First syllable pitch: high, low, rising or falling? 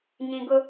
low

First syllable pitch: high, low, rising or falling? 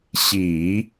low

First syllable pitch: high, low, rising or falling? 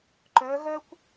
rising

